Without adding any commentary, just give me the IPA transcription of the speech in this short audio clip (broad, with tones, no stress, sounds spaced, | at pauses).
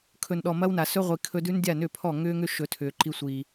kʰ ɵ˨ n ɗ ɔ˨ m ɐ˦ w n a˨ s ɵ˦ ʁʷ i˨ kʰ ɵ˦ d ʉ˦ n dʲ a˦˨ n ʏ˦˨ pʰ ɔ˦˨ ŋ ʏː˦ ŋ ʏ˦ ʃ ɵ˧ tʰ ʏː˨ ǃ i˧ sʷ iː˨